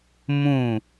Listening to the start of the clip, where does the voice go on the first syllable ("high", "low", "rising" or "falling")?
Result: falling